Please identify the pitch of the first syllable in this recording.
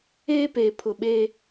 high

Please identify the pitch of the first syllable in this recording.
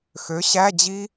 rising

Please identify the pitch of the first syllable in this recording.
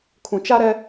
low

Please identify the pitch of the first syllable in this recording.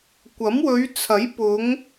rising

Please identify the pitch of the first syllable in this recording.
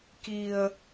low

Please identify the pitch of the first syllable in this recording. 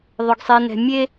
low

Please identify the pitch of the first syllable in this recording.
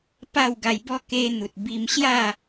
falling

